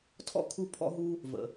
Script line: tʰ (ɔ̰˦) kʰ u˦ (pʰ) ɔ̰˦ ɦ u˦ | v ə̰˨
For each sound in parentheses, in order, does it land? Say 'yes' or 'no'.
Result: yes, yes

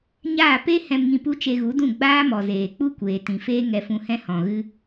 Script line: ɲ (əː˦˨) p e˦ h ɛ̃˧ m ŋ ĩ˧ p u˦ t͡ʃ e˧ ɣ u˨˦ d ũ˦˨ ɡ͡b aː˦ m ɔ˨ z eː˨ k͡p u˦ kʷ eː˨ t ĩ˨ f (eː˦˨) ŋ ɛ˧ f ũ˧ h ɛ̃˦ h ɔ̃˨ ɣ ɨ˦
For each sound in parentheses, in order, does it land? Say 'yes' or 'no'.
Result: no, no

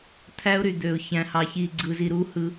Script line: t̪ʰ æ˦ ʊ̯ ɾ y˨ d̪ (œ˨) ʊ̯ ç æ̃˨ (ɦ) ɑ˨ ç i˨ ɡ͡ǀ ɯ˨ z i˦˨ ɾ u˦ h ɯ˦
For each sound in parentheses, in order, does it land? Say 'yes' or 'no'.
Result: no, no

